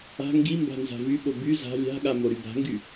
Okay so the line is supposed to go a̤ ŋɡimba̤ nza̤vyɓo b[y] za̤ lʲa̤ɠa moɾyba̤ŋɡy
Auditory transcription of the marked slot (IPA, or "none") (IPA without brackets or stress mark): y